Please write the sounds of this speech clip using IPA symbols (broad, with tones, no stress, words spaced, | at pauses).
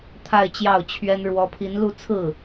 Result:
t̪ʰa˥˧ɪ̯ t͡ɕjɑ˥˩ʊ̯t͡ɕʰɥɛ˥n ɻwɔ˧˥pʰi˧˥nlu˥˧ t͡sʰɹ̩˥˩